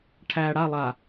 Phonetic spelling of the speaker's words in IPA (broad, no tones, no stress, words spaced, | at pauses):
ʈʰæ ɽa lˠa